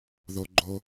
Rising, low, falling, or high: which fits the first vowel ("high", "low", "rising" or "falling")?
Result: low